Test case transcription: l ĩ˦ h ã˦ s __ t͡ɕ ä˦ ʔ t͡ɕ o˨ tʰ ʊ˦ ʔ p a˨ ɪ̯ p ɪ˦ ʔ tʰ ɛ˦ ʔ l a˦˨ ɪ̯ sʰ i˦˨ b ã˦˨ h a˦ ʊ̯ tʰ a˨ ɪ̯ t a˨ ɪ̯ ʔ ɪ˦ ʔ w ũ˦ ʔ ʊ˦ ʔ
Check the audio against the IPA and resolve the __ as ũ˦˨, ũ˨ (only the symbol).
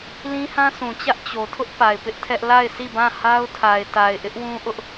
ũ˨